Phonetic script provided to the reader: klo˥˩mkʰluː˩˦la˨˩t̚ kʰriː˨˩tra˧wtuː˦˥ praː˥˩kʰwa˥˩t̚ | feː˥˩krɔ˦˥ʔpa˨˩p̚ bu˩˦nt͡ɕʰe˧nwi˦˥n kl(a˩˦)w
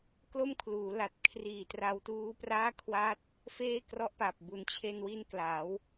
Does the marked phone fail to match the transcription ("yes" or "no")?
no